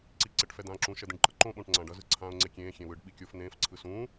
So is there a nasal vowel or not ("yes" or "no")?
yes